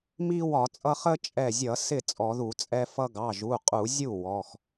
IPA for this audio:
m i˦ w ɒ˧˩˧ t͡sʼ ʌ˦ χ ə˦ t͡ʃʼ ɛ˧˩ zʲ ʌ˧˩˧ s ɪ˥˩ t͡sʼ ɔ˧˩˧ ð u˧˩˧ t͡sʼ ɛ˦ f ʌ˦ ɡ ɑ˩˧˩ ʒ u˩˧˩ qʼ u˧˩˧ zʲ u˥˩ w ɔ˩˧˩ x

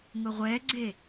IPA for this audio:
ŋ ʊ ʁʷ ɛ ɡ͡ǀ e

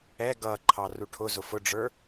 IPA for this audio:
ɛ ɡ ʌ ǃʰ ɑ r u ʈʰ ʊ z ʊ f ʊ ɖ͡ʐ ə˞

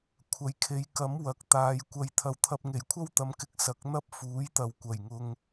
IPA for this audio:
kʷʰ ɐ˨ j kʰ e˨˧ j k ɐ˨˥ m w ɐ˨˥ k̚ t̪ aː˨˧ j kʷ ɐ˧ j t̪ʰ ɐ˨ w t̪ʰ ɐ˧ p̚ ŋ e˨˩ j kʷʰ ɐ˥ w t̪ ɐ˨˧ m k ɪ˧ k̚ s ɐ˨˥ k̚ n̪ ɐ˥ p̚ f uː˨˥ j t̪ ɐ˨ w kʷ ɐ˨˩ j ŋ ʊ˧ ŋ

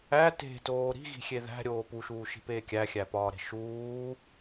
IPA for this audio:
æ t e̤ t oː ɾ i̤ ɣ i̤ xʲ e ð æ̤ ɾʲ oː p u ʃ uː ʃ i̤ p eː kʲ æ xʲ æ p ɒː ɾ e̤ ʃ uː

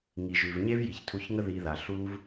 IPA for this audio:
ŋ i˨ ʒ ʉ˨ v ɲ e˦ v j i˨ ç tʰ u˧ ç ŋ ə˦ ð i˧ ð a˨ ɬ u˦ v

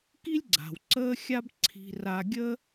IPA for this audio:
k i˥ lʲ ɡ͡ǀ a̤˩ w ǀ əː˥ xʲ a˥ b ǀʰ i̤˧ r a˧ ɡʲ ə˥

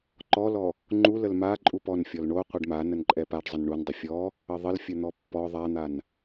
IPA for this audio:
ǃ ɔ l ɔ | ŋ͡ǃ u l ə l m a ǃʼ u p ɔ n fʲ ɔ l ɳ o qʷ ə ɖ m a n ə n ǃʼ ɛ p a ɖ zˤ ə n ɳ u n dˤ ɪ fʲ ɔ | ə ðˤ ə l fʲ ə n̪ ɔ pː ɔ ðˤ a n̪ a n

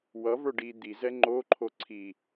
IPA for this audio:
w ʌ v ə˞ ɖ i d̪ i z ɛ ŋ͡ǃ o ǃʰ o ǀʰ i

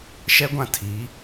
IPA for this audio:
ʃ ɛ˦ ɡʷ ã˦ tʰ i˨˦

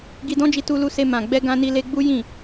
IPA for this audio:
ɡ i˧ d ɔ̃˦ d͡ʒ i˧ t u˧ l u˧ s e˧ m ã˨ ɡ͡b ɛ˧ ɡ ã˧ n i˧ l e˧ ɡ͡b u˦ j ĩ˦˨

